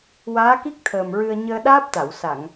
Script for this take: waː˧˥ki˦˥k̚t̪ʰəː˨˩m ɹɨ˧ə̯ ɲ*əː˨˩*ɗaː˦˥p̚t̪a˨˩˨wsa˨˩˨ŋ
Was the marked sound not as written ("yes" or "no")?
yes